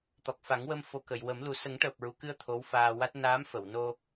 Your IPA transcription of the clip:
t̪ ɔ˨˩ k̚ f a˨˩˦ ŋ w ə˧ m f o˨˩ k ə˨˩˨ j w ə˨˩˦ m l u˨˩˦ s ə˨˩˦ ŋ ʈ əː˨˩ p̚ ɹ u˨˩˨ k ɨ˧ ə̯ t̪ʰ o˧˥ w f aː˧ w a˦˥ t̚ n aː˧˥ m f ə˨˩˨ w n o˧

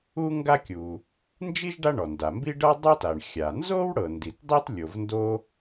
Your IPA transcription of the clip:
u˥ ŋ ɡ a˥ kʲ u˩ | n d͡ʒ i˥ ʒ ɖ a˥ ɳ ɔ˩ n d a˩ m b i˥ ɖ ɤ˥ dˤ o˥ t a˩ ɳ xʲ a˩ n z o˥ w ɽ ɤ˩ n d i˩ t dˤ i˥ t lʲ o˩ v n d o˥

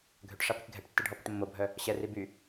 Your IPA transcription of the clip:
ɡʱ ø ʈ ʂ a p y k ɡʱ ɛ ʈ tː e ɖʱ ɔ p ə ʈ mː o bʱ œ | ɕ ɛ r i b y

